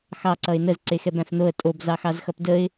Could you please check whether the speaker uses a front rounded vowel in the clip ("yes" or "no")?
no